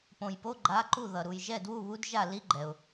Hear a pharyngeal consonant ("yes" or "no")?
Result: no